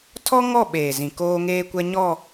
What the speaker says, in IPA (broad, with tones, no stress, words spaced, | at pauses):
tʰɔ˦ŋɔ˦˨ ɓeː˨zĩ˨ koː˦ŋeː˦kʷɛ˦ ɲɔ˦˨